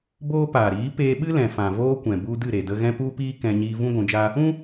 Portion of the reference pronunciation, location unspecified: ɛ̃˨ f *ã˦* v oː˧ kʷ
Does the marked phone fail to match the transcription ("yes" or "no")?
yes